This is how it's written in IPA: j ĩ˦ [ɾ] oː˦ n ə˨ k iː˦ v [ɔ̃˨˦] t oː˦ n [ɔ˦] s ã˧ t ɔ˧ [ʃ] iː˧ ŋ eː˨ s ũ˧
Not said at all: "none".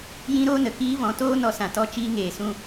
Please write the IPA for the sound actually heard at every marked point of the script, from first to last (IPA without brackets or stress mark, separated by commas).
ɾ, ɔ̃˨˦, ɔ˧, t͡ʃ